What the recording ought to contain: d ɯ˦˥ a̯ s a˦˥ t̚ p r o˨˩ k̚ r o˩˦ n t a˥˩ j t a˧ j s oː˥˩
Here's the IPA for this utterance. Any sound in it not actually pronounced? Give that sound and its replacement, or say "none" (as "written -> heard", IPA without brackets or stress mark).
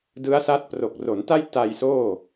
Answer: none